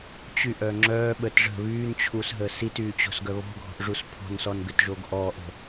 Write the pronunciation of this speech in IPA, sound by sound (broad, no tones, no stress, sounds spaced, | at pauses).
t͡ɕ y ʔ œ ŋ͡ǁ œː ɓ ə t ʐ ə̤ β yː n t͡ɕʰ u s ɦ əː s i t yː t͡ɕ o̤ s ɡ œ β ɔ̤ ɡʱ ɔ̤ ʔ ʐ u s pʰ ɔ̤ n s ɔ n ɡ ø t ʒ o ɡ ʔ ɔː ʔ ə̤